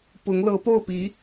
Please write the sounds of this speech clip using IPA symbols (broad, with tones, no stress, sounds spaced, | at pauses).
p ʊ˧˥ ŋ l ɤ˧˥ p o˥˩ ʊ̯ p i˧˥